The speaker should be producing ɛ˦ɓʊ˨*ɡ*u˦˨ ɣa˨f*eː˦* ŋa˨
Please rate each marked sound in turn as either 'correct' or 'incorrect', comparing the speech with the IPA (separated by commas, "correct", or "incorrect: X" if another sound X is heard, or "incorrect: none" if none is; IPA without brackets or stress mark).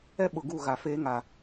correct, correct